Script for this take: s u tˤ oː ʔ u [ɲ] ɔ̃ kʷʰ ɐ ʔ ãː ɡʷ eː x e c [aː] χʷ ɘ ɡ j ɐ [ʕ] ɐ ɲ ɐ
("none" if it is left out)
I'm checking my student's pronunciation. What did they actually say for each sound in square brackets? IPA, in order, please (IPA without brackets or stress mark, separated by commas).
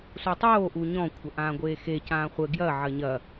ɲ, ãː, ʕ